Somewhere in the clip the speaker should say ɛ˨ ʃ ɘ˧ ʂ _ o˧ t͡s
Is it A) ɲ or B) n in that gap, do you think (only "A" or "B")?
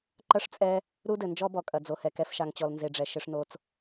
B